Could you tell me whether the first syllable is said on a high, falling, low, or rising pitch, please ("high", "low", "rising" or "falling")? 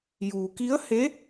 low